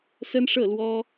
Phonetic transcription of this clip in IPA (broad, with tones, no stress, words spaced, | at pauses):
sə˥nʂɤ˥˩lwɔ˥